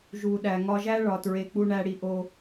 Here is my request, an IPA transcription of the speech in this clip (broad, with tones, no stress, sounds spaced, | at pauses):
ʒ u˨ ɗ æ˨ ŋ ɒ˦ ʒ æ˦ ɭ ɒ˨ t ɹ e˨ k͡p u˦ ɳ æ˦ ɽ i˦ ʔ o˦